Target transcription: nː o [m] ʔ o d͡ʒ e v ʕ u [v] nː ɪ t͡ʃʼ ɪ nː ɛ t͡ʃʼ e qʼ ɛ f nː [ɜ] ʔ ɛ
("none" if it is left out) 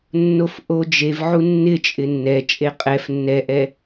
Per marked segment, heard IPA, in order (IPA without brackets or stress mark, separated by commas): f, none, ɛ